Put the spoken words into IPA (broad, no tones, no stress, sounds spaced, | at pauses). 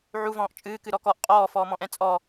ʕ u v ɔ̃ː ʔ t͡ʃʼ ɨː k ɨ ɾ ɔ k ɔ ʔ qʼ ɔː f ɔː m ɔ̃ ʔ ɛ̃ t͡sʼ ɔ